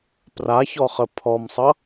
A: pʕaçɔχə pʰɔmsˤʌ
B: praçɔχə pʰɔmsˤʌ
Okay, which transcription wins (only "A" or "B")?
B